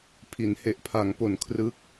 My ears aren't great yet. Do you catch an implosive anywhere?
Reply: no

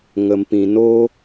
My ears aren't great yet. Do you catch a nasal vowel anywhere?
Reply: yes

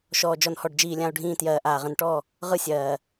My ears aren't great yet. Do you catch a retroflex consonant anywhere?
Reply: yes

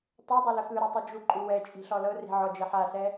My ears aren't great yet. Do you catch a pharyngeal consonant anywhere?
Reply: yes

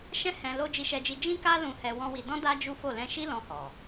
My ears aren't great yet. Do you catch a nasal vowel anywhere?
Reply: yes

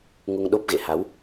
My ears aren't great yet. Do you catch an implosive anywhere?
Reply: yes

